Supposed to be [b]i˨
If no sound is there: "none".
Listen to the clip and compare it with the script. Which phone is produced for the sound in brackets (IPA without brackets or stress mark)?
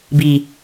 b